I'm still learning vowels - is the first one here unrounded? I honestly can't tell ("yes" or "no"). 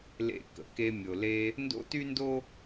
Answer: yes